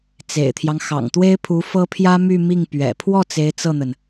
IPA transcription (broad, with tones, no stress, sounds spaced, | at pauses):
t͡s ḛ˨˩ ɪ̯ t̪ʰ j ɑ˦ ŋ x ɑ̰˨˩ ŋ t̪ w e˥ ɪ̯ pʰ u˧˥ f ɤ˥ pʰ j ä˥ m y˥˧ m i˥˩ ŋ p ɥ ɛ̰˨˩ pʰ w ɔ˥˩ t͡s e˧˥ ɪ̯ t͡s ɤ˥˩ n̪ ə˩ n